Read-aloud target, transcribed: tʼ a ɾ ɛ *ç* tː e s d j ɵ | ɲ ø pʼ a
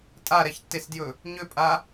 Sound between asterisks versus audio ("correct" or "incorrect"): correct